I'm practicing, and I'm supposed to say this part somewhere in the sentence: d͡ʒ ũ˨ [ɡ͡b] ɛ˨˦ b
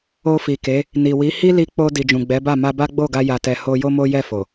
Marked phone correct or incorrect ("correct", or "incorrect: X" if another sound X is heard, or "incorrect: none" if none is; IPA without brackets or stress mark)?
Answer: correct